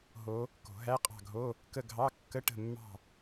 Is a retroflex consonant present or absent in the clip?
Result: present